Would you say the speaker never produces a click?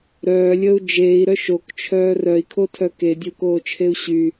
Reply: yes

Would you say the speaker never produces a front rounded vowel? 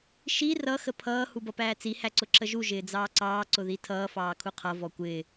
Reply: yes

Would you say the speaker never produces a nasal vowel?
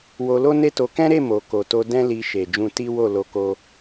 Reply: no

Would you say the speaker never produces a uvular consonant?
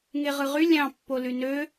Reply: no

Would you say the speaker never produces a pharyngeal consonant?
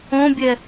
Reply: yes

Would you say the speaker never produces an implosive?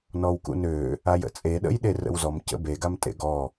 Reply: no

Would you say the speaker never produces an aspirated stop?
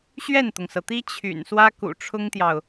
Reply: no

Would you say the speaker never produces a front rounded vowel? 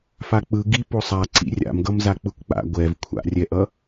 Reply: yes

